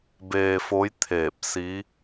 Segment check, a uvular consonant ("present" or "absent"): absent